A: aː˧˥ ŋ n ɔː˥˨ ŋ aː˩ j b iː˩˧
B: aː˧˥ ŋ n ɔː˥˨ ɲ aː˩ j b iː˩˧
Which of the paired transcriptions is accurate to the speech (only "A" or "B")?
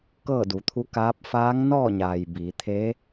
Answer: B